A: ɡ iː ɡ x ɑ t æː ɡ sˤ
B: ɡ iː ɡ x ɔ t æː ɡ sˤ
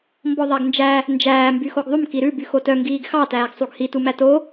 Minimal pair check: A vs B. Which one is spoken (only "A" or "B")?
A